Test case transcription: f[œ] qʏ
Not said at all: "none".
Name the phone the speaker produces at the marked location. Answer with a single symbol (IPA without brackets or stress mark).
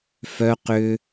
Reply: œ